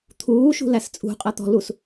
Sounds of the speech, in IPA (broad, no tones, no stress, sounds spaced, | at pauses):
t̪ʰ uː ʃ ṳ l æ s t͡sʼ ṳ qʼ ɜ t̪ ɔ̤ l u s